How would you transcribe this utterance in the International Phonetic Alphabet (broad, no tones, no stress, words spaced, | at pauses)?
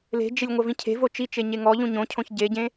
le̤d͡ʒelʲ ŋʷɐvĩcʰe̤vo t͡ʃit͡ʃe ɲeŋɔʎũ ɲõcʰõç ɟeɟẽ